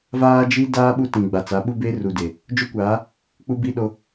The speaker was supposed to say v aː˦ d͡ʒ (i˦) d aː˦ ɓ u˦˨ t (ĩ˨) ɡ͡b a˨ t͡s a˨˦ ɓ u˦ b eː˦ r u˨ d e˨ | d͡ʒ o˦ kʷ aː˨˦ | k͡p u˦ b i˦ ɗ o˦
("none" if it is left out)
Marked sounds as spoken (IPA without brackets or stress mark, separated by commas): i˦, ĩ˨